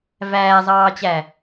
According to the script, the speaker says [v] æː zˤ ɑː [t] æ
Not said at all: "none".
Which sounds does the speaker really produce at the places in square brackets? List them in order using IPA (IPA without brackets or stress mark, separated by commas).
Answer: v, t͡ɕ